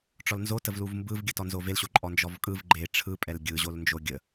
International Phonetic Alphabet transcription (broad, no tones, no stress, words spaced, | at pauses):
ʈ͡ʂɔlnzotəv luvmbɯvɡʲətɔ nzovelɕo ǃʼɔnd͡ʒɔvkʼɯv ɡ͡ǃe ʈ͡ʂʰɯpʼɛl ɡʲɯʑolnd͡ʒo ɡʲə